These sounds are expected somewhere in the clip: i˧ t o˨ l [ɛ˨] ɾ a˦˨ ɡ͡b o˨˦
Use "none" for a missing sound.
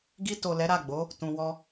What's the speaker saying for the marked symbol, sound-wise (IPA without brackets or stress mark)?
ɛ˨˦